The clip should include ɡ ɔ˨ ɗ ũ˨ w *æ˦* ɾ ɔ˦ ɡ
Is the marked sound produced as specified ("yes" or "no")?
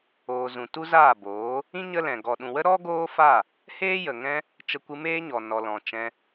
no